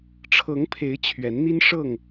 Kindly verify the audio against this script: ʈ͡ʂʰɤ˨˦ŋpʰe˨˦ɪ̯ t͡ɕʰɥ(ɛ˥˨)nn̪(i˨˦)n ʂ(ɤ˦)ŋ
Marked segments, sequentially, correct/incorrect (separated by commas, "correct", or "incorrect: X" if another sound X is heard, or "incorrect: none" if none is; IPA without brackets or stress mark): incorrect: ɛ˨˦, incorrect: i˦, incorrect: ɤ˥˨